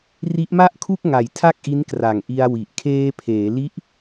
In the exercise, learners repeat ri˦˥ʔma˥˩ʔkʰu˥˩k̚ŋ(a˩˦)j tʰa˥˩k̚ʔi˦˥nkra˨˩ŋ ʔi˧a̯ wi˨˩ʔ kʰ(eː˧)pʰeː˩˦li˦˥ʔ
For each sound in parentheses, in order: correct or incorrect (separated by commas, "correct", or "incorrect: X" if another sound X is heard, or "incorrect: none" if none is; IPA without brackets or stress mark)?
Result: incorrect: a˨˩, correct